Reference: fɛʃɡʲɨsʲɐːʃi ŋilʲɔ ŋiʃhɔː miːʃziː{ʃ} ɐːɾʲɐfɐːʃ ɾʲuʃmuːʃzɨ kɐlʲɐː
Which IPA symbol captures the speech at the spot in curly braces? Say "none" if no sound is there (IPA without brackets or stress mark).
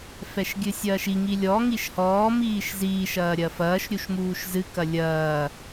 ʃ